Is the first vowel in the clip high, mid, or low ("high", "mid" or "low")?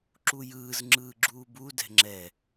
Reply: high